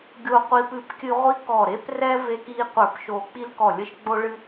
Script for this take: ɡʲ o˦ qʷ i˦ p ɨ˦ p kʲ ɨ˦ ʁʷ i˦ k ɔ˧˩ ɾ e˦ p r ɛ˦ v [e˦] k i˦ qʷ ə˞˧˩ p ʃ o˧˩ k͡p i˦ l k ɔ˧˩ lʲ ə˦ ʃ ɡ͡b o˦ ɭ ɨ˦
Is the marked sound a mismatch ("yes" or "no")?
no